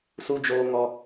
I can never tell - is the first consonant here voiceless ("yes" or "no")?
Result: yes